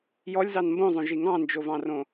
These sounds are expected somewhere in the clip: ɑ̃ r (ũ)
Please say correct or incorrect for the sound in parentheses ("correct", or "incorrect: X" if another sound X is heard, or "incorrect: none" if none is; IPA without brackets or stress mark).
incorrect: õ